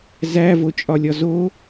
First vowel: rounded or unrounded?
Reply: unrounded